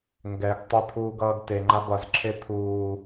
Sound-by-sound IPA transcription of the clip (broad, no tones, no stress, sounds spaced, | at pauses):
ŋ ɡ ɛ ɡ tˤ ɪ t̪ʰ uː ɡ ʌː ɡ t e ŋ͡ǃ a b ʌ z ǁʰ e t̪ʰ uː